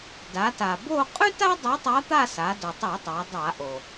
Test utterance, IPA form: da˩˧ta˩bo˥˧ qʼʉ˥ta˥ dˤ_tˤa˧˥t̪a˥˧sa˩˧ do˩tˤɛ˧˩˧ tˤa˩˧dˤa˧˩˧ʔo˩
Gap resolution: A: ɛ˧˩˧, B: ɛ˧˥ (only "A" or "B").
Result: B